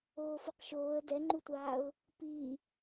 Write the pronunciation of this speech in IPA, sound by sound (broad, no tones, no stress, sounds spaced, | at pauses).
oː f ʊ q ʃ oː ə̯ d ɛ ŋ͡ǃ u tʷ aː ʊ̯ | p i